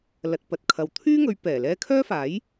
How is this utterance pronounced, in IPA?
lɐ˨t̚pɐ˨t̚kʰɐ˨˧w t̪ʰyː˥ŋɵ˨˧ɥ pɛː˨˩ lɛː˧kʰœː˥faː˨˥j

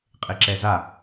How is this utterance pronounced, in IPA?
qʼeǁɛza

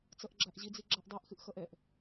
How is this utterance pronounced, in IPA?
t͡sʌʔɡ͡ǁaʔʑi d͡ziɡ͡ǁaʔdˤɛʔ xɨʔxʌʔɛʔ

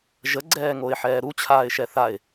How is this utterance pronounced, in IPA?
ʒəɡ͡ǀɛːŋoɪ̯ħɛː ɾut͡ɕʰaːɪ̯ʃɛ θaɪ̯

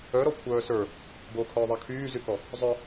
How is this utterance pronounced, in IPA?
œ ɾɔkʷʰœːsə˞ | bokʰœː ðˤakʰyːzykɔ | zˤœ

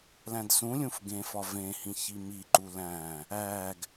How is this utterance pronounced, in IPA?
læ̃dsũlʲũf ɡẽfɒ vẽhĩ çimiǃu læ̃ | æɡ

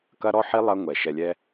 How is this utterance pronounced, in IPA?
kɐ˦ɾɔ˦ħi˦ lˠɐ˦ ŋʷɛ˩ ʃɛ˨lʲɛ˦

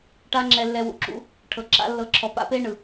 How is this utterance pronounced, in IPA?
ʈa˦ŋ͡ǁɛ˧lːɛ˧ wṵ˨ǁṵ˧ | ʈʰɤ˨ǁa̰˦lːɤ˧ǁʰɔ˧ pa̰˦pe˦ ɳɯ˨

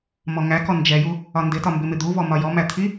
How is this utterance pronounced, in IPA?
mɔŋækɔ nd͡ʒɛju | ɒndɪtɒ mbɪmɪd̪uvɔ mɒjɔmæ t̪ʰi

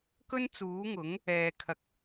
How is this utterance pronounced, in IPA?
kɵ˥n t͡suː˨˥ŋʊ˨˥ŋ | ɛː˨kʰɐ˧k̚

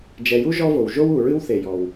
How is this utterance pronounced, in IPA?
d͡ʒɛ˨ju˥ ʒɔ˥vo˨w ʒo˥wu˨ɹɨ˥w θe˨jɔ˨w

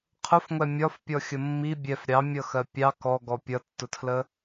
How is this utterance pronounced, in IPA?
qʰʊfŋʷɛ mʲɒfpʲɔxʲə mːi bʲɛf ɾʲɑmʲʌxɜ pʲɑ kɔɡɔ pʲʌtːʊtʰlə

